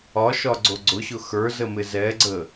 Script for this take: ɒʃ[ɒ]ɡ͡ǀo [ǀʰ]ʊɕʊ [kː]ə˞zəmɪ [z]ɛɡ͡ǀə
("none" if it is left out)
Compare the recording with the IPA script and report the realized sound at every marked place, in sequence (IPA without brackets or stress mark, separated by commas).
ɒ, ɡ͡ǀ, x, z